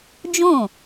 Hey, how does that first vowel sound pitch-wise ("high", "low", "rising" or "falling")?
falling